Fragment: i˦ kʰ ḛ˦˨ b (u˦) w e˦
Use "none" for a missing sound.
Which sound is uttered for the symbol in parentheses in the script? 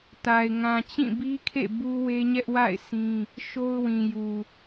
u˦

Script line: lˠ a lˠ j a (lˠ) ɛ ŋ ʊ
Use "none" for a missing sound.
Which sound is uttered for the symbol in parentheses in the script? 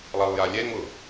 lʲ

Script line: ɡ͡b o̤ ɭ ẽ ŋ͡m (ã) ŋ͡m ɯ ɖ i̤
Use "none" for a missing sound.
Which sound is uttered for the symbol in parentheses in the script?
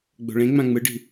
ã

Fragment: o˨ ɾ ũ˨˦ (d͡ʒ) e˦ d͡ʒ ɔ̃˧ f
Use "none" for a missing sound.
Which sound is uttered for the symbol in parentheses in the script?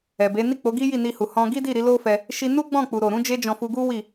d͡ʒ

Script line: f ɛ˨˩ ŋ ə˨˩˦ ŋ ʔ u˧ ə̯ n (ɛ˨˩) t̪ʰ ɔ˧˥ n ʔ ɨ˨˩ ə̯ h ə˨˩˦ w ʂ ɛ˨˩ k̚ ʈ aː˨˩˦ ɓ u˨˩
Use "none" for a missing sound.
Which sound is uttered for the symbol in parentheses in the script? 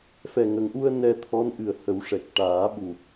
ɛ˧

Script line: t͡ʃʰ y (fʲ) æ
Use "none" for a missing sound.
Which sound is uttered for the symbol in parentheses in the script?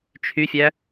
fʲ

